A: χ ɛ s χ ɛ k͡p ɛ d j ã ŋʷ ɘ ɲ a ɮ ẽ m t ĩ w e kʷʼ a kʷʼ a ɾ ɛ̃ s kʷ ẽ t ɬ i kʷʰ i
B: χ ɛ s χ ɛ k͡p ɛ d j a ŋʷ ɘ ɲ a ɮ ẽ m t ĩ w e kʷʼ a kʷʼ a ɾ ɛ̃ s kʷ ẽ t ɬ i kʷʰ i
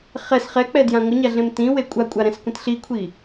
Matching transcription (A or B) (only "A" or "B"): A